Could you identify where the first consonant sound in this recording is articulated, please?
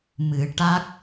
labial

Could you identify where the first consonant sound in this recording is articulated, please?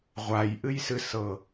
uvular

